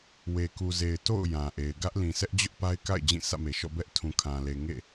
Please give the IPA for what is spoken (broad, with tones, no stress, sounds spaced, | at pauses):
w e˨ k u˨ z e˨ ɪ̯ t o̰˦˨ ʊ̯ j ã˨ ʔ e˨ ɪ̯ ɡ ä˦ ʔ l ĩ˨ sʰ ɛ˦ ʔ d͡ʑ ʊ˦ ʔ p a˦ ɪ̯ k a̰˦˨ ɪ̯ d͡ʑ ĩ˦˨ s ä̰˦˨ m e˨ ʃ ɔ̰˦˨ b ɛ˦ ʔ tʰ ũ˨ kʰ ã˨ l e˨ ŋ ḛ˦˨